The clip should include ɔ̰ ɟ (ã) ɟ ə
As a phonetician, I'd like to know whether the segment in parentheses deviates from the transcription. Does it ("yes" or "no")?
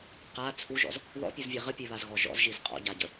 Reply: yes